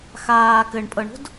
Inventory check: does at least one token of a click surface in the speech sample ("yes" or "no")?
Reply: no